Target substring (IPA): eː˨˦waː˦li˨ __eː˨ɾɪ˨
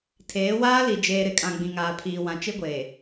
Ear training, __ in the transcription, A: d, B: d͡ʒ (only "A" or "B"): B